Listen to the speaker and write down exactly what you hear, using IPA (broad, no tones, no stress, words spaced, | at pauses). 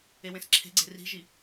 ewẽsǁʰe̤ɡ͡ǀe̤ ri̤ʒi